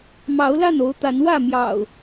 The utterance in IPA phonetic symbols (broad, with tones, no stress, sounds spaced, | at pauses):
m ɑ˨˦ ʊ̯ l a˥˨ n o˨˦ ʊ̯ t̪ a˨˦ n w ä˥˨ m j ɑ̰˨˩ ʊ̯